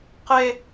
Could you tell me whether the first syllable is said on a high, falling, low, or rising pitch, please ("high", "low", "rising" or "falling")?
high